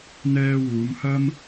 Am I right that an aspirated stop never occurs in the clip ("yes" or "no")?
yes